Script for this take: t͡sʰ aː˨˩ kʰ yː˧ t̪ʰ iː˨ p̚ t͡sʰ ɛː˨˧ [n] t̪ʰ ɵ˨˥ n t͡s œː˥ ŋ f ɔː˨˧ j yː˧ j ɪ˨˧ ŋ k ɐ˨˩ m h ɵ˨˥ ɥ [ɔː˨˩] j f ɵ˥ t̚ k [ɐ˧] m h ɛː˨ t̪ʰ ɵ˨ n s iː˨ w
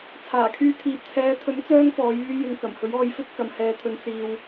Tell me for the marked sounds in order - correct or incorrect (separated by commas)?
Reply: incorrect, incorrect, incorrect